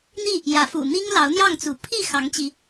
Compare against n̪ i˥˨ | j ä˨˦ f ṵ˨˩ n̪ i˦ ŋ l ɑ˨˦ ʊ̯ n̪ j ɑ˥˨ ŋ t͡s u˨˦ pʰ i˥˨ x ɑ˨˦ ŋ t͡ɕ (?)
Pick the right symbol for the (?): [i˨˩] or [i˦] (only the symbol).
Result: i˦